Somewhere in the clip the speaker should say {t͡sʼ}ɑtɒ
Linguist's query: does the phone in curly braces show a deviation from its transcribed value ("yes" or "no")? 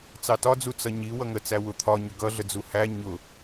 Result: yes